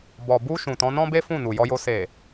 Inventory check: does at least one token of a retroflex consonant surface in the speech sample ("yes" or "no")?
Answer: no